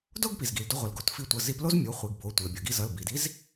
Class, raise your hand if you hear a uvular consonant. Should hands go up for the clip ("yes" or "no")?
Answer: yes